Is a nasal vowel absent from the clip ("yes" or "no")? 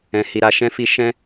no